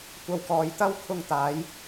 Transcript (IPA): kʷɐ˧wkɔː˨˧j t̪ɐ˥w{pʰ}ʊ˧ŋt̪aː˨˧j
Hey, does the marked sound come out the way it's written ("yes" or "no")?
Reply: no